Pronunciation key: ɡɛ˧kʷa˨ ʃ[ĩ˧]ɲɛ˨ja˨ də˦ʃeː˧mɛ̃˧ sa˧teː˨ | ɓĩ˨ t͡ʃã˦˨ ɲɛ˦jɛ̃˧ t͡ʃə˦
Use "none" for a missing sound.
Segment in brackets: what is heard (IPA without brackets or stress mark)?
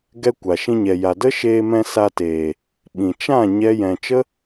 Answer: ĩ˧